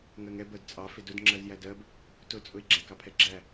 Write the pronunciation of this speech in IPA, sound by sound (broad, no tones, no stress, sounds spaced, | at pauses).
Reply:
ŋ ɜ ŋ ɛ b ɜ d t͡sʼ ɑ f ɪ d ʊ d ŋ͡ǁ ɜ z j æ d ɜ b | t ʊ t͡sʼ ʊ ɪ̯ ɡ͡ǁ æ k ɑ pʰ ɛ ɡ͡ǁ æ